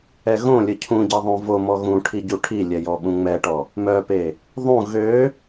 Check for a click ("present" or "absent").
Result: absent